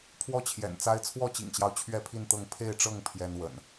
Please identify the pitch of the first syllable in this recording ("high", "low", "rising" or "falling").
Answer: falling